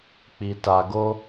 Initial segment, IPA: k͡p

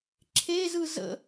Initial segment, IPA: ǁʰ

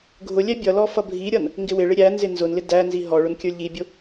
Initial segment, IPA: ɡʱ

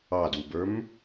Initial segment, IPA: ɑ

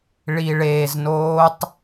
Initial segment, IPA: ɭ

